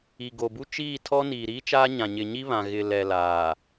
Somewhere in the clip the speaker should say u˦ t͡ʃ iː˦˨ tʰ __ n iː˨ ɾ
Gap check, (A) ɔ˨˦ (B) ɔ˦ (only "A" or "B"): B